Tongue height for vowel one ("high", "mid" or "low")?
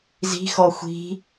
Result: high